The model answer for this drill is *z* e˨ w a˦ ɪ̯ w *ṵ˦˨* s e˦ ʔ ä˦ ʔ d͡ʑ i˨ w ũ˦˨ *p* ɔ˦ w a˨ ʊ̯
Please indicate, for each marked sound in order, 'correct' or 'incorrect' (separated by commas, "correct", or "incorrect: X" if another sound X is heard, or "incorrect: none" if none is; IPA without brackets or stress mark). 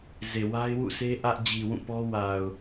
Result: correct, correct, correct